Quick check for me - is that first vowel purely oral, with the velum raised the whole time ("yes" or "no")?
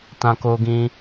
no